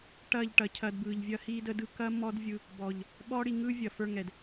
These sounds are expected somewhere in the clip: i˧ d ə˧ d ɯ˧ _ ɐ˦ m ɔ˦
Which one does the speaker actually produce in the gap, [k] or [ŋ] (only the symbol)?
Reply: k